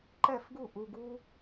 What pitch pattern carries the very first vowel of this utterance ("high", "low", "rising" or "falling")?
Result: falling